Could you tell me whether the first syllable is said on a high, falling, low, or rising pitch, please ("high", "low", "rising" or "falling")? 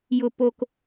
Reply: low